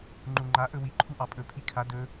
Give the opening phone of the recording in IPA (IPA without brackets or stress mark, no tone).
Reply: ŋ͡ǃ